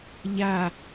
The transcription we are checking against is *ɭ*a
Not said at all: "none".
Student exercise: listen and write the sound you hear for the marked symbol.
ʎ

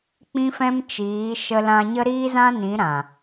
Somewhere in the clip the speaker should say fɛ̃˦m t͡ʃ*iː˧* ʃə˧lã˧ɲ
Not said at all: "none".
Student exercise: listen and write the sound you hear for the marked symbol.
iː˨˦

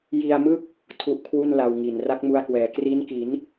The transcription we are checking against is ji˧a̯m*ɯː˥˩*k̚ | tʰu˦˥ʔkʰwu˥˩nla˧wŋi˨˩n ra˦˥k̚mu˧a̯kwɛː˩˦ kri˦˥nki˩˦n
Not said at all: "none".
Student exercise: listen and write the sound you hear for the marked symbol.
ɯ˥˩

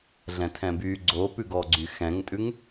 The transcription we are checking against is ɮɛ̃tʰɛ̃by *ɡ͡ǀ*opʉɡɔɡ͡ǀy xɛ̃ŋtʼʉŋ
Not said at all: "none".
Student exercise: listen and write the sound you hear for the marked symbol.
ɡ͡ǀ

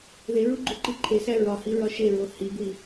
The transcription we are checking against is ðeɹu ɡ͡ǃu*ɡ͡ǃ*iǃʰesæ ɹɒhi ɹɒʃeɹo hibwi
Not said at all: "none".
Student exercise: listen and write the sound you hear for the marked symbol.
ǃ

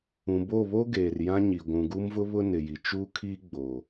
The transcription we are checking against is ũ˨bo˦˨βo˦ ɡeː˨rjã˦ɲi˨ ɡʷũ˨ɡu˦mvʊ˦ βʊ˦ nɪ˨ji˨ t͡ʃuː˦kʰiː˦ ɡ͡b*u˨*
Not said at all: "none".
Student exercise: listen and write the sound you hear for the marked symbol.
o˨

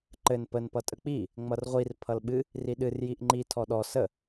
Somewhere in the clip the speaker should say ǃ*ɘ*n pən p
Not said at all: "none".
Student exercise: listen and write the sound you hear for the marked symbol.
ɘ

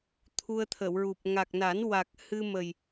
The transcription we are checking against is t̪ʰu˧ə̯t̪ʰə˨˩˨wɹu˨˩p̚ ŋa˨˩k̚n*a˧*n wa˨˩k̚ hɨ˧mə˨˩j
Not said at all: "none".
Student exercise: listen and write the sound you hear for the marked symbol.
a˨˩˦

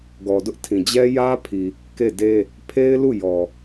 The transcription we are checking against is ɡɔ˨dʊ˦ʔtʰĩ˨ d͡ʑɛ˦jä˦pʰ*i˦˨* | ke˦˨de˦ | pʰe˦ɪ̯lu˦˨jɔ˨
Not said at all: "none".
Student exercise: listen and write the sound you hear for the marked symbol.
i˨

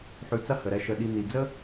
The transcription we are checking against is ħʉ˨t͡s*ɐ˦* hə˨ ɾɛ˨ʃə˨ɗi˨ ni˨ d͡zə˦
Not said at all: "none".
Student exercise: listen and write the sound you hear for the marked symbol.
ɐ˦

